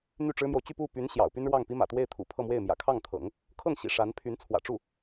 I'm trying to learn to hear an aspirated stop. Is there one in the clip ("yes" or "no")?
yes